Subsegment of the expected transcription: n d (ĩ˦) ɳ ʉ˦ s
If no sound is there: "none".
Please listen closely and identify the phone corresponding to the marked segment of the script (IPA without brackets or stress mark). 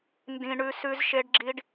ĩ˦